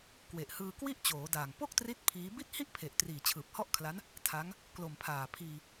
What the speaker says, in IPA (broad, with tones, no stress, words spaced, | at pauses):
kwe˨˩ʔhɯː˧kwi˥˩ʔ t͡ɕoː˩˦ daː˨˩ŋ po˥˩k̚tri˦˥t̚ pʰiː˦˥ bi˥˩t̚ hi˥˩ʔpʰe˨˩ʔ triː˨˩t͡ɕʰɯː˨˩p̚hɔ˥˩ʔkʰla˦˥n | tʰa˦˥ŋ | klo˨˩mpʰaː˨˩pʰiː˧